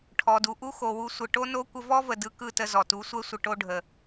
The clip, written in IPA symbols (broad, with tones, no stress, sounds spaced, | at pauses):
ʈʰ ɔ˨ d u˨ ʔ u˦ x o˨ w u˧ sʷ ə˨ ʈ o˦ n o˦ kʷ ə˧ v ɔ˦ v ə˨ d ɯ˧ k ɯ˦˨ t ə˧ z ɔ˨ t u˨˦ sʷ ɛ˦ sʷ ə˧ ʈ o˧ ɖʱ ə˨